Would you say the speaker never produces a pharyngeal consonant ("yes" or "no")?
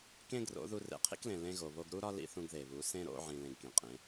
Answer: no